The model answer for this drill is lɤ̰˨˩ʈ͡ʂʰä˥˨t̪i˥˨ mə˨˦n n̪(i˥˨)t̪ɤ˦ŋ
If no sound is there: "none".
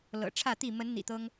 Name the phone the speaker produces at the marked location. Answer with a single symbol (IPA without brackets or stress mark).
ḭ˨˩